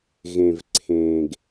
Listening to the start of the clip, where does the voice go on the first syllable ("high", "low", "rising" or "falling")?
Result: low